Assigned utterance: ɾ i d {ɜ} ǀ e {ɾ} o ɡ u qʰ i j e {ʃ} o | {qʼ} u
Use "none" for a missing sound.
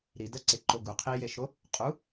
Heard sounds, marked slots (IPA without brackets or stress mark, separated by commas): ɜ, ǃ, ʃ, qʼ